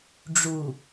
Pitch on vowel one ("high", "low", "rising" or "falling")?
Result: low